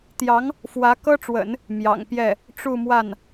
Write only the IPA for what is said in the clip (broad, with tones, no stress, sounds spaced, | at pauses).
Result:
t̪ j ɑ˧˥ ŋ | f w ä˧˥ k ɤ˥ ʈ͡ʂ w ə̰˨˩˦ n | m j ɑ̰˨˩ ŋ p j ɛ˥˩ | ʈ͡ʂ u˥˧ m w a˥˩ n